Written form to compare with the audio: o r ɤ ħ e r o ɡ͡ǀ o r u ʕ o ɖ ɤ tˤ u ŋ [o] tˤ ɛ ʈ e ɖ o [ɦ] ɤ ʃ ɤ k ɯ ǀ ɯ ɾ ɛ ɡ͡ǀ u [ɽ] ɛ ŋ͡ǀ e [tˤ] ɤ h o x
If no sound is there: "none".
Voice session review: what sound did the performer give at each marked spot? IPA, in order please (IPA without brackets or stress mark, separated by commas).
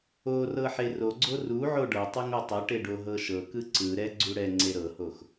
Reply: o, ɦ, ɽ, ɾ